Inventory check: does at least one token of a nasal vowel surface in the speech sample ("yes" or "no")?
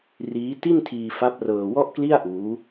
no